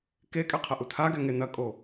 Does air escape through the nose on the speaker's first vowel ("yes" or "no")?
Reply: no